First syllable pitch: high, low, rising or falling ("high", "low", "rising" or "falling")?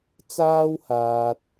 high